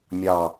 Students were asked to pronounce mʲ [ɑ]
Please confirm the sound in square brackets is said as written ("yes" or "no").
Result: yes